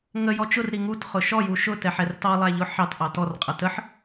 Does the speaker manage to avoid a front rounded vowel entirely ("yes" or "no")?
yes